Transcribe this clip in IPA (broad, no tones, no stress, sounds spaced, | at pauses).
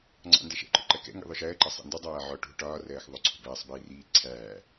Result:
ŋ͡ǀ ɑ̰ n d ɛ ʃ ɛ̰ ǃ ʊ ǃ ɜ k ɛ̰ ŋ ɡ ḭ ðˤ ʊ ʃ ɜː ǃ ɑ sˤ ḭ n d u dˤ æː ʕ ɔ ʈ ṳ ʈ ɒː r ɜː x ðˤ ʊ ǀʰ ṳ b æː sˤ b iː r iː ǀʰ æː